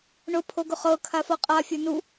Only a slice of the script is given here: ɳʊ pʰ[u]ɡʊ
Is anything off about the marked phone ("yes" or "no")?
yes